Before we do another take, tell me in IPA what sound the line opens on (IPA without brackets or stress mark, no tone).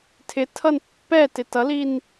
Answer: tʰ